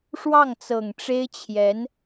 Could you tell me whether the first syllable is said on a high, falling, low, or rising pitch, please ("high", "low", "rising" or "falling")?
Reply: falling